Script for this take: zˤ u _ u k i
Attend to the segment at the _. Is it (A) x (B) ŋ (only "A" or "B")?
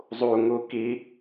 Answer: B